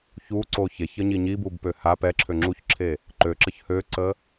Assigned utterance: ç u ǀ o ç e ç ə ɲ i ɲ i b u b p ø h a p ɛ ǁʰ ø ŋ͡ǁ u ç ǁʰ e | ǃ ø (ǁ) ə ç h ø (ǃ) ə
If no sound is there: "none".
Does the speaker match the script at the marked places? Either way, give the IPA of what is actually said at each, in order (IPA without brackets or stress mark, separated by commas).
ǁ, ǀ